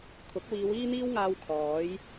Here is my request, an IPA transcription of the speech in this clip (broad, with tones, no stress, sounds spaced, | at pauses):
kʰ ʊ˨˥ k̚ w iː˨˧ w iː˥ n̪ iː˥ w ŋ aː˧ w kʰ ɔː˨˥ j